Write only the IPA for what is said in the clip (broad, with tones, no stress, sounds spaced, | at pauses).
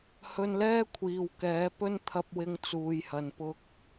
h ɵ˧ n l ɛː˥ kʷʰ iː˨ w k ɛː˨˥ p ɵ˥ n t̪ʰ ɐ˧ p̚ w ɪ˧ ŋ t͡s uː˨ j h ɐ˨ n p ʊ˧ k̚